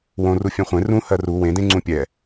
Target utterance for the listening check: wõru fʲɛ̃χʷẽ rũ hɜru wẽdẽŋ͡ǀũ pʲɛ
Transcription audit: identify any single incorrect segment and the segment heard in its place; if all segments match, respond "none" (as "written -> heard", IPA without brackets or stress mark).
none